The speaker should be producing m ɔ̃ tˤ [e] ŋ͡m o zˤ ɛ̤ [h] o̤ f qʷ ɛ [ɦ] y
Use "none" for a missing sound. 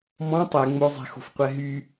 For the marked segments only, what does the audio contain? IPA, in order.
ɛ, x, ɦ

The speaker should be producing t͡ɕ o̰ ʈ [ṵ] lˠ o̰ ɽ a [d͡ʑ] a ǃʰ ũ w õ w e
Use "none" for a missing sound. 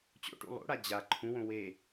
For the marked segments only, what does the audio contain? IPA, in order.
ṵ, d͡ʑ

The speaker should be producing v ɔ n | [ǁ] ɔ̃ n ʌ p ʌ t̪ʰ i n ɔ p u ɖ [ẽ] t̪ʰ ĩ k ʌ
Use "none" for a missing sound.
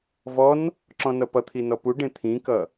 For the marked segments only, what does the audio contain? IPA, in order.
ǁ, ẽ

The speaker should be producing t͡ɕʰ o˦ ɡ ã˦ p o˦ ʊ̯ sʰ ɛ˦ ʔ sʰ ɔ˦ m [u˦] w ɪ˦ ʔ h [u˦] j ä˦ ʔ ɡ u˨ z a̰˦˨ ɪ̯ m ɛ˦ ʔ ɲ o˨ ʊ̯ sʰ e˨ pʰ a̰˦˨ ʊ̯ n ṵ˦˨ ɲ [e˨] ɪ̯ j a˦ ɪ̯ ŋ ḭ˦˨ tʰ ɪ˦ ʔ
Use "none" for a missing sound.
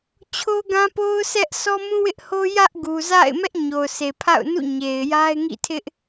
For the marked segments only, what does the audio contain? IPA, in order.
ũ˦, o˦, e˨

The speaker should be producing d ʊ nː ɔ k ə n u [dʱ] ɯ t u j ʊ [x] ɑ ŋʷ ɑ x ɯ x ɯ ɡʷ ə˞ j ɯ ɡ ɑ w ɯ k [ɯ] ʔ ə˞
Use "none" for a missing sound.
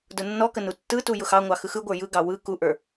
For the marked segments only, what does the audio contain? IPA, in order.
tː, x, u

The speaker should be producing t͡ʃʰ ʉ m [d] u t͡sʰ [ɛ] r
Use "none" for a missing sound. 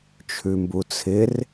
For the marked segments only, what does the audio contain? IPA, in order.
b, ɪ

